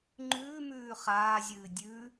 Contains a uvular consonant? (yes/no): yes